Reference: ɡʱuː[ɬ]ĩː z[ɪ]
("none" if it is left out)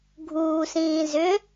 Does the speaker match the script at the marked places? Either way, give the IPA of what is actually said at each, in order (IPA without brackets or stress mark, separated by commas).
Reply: s, ʏ